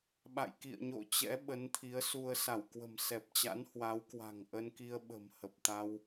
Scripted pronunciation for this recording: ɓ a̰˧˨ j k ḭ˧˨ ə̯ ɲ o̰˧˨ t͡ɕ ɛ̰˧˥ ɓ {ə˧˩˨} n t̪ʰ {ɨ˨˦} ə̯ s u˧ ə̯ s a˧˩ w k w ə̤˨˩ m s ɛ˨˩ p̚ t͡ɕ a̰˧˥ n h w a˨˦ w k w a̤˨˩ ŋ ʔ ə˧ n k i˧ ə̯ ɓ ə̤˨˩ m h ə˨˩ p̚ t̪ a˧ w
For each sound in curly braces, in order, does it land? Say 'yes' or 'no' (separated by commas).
no, no